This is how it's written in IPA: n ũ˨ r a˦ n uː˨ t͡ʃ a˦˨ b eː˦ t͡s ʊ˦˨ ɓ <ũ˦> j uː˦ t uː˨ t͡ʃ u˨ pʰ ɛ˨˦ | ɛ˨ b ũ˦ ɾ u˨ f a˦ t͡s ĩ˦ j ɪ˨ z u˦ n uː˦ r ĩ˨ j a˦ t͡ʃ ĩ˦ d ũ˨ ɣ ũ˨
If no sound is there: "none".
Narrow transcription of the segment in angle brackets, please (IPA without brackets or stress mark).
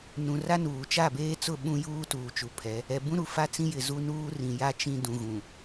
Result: ũ˦